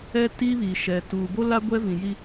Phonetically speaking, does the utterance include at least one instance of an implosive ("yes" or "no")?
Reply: no